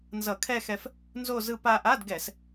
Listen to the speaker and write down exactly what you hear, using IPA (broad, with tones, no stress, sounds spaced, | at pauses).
n z ʌ˧˩˧ kʰ ɛ˥˧ x ɛ˧ f | n z o˥˧ z ɯ˧ p a˧ ʔ a˧˥˧ d ɡ ɛ˧˩˧ s